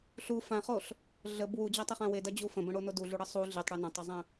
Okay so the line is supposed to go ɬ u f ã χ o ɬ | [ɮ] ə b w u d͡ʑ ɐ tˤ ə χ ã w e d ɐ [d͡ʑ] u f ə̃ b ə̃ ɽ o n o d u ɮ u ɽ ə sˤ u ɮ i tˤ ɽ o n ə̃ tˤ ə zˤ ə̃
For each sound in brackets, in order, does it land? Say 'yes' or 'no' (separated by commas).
yes, yes